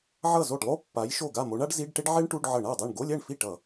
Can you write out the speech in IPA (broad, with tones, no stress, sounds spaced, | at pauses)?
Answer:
ʕ ʌ˥˩ z o˥˩ ɖ lˠ o˥ pː a˨˥ j ʃ o˥˩ ɡ a˥˩ m o˨˥ ɳ a˥ ɖ z i˧˥˧ ɖ ʈ e˥ ɖ ʕ e˥ ɳ ʈ u˧˥˧ ɖ ʕ ʌ˧˩˧ ɳ a˥˩ dˤ ɛ˥˩ ɳ ɡ o˧˥˧ lʲ ɛ˥˩ ɳ f i˥˩ ʈ ʌ˧˩˧